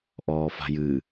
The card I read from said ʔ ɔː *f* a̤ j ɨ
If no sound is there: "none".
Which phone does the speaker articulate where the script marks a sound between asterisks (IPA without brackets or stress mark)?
f